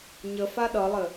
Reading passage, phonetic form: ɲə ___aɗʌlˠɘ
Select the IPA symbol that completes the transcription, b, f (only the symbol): f